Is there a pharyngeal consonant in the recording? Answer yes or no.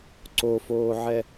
yes